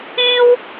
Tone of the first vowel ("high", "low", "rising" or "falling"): high